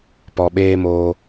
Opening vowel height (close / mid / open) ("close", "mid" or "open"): mid